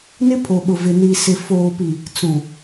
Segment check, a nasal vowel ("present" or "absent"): present